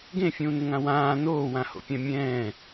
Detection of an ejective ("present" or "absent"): absent